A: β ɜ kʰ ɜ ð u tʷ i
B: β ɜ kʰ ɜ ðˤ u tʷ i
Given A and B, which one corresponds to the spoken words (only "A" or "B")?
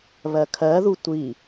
A